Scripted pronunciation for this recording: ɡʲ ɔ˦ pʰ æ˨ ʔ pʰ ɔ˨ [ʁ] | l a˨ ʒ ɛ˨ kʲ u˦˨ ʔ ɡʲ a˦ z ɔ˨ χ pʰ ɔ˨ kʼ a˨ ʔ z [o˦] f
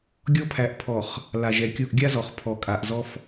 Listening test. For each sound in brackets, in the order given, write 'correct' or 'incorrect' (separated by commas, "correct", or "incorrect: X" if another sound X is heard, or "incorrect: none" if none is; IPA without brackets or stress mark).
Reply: incorrect: χ, incorrect: ɔ˦